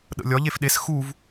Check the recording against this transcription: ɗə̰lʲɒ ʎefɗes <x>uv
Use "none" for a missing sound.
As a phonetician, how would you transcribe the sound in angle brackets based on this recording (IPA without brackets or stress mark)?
x